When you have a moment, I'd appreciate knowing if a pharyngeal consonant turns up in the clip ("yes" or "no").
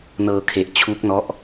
no